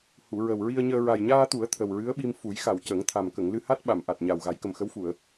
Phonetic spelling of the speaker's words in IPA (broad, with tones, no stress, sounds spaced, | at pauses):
h u˨˩˨ ɹ ə˨˩ w ɹ i˧ ə̯ ɲ əː˧ ɹ a˨˩ j ɲ aː˧ t̪ u˨˩˦ ə̯ t̪ʰ ə˨˩ w ɹ ɨ˧˥ ə̯ ɓ i˧ m f u˨˩˦ j x a˨˩ w c ə˨˩˦ ŋ t̪ʰ a˨˩ m k ə˨˩˨ ŋ l ɨ˧ h a˦˥ t̚ ɓ a˨˩˨ m ʔ a˨˩ t̚ ɲ a˨˩ w ɣ a˨˩˦ j k ə˨˩ m x ə˧˥ w f u˨˩˨ ə̯